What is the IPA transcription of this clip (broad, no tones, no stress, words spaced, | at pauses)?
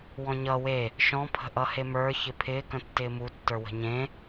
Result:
wɔ̃ɲʌ we | ʃɔ̃ pʰə̤ʔʌhemə˞ çɪpʰɪː kə̃tːɪːmu tːə˞wə̤ɲẽ